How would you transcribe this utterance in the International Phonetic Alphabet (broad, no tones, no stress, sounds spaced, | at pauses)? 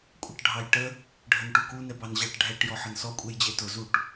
kʷʼ ʌ ʈ ɖʱ ɑ j ʈ ə | ɖʱ ə n ʈ u k u n ɛ b ɑ n ʑ ɑ ʈ ɖʱ ɛ ʈ j ɔ ħ ə n s ɔ kʷʼ ɛ j d͡ʑ ɛ t ʊ z u ʈ